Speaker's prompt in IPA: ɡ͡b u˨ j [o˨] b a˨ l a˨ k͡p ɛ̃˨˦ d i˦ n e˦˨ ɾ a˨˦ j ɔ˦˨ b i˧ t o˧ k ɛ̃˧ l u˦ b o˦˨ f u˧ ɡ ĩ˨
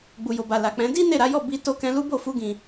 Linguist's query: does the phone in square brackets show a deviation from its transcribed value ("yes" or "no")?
no